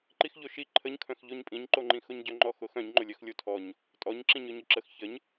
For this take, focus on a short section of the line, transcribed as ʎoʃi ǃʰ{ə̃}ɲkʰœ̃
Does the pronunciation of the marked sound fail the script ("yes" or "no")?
yes